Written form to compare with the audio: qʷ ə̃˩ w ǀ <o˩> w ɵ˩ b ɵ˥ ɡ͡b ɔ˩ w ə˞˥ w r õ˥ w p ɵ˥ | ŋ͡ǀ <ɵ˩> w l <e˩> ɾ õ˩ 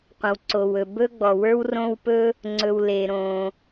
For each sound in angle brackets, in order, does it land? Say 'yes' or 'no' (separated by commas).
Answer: yes, yes, yes